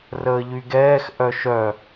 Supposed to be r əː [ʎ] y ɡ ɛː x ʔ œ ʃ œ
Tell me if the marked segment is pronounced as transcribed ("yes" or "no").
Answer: yes